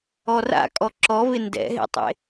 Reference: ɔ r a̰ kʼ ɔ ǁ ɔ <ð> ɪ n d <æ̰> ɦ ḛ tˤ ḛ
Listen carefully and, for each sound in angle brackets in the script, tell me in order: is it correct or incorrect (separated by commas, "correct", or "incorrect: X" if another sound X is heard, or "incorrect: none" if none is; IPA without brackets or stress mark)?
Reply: incorrect: v, incorrect: ɛ̰